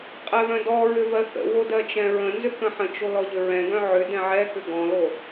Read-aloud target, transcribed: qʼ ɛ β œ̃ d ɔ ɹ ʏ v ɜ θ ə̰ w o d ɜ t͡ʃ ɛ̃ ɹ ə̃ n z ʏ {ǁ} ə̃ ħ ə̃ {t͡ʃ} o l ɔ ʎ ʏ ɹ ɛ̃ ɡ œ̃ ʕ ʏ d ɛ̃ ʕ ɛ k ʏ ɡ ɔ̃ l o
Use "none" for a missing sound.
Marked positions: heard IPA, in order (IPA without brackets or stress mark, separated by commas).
k, t͡ʃ